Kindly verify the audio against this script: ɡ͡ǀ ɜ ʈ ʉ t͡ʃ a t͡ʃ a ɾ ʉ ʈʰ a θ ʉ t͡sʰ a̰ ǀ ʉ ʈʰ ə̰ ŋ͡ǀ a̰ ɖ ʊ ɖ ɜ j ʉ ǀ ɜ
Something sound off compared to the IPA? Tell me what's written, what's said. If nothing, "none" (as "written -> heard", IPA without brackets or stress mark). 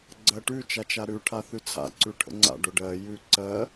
none